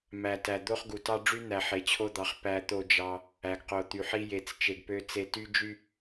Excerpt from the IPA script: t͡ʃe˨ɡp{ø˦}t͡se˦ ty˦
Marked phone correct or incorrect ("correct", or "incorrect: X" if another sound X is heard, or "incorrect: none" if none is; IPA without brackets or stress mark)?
correct